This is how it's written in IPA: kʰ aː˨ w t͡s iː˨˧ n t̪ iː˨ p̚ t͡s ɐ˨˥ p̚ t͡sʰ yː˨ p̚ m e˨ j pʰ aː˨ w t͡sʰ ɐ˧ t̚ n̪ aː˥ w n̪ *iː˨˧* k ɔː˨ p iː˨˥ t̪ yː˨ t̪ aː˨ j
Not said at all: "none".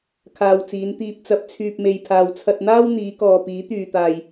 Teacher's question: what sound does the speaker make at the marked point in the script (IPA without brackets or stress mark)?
iː˨˧